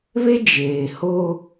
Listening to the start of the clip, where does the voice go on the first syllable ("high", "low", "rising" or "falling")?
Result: high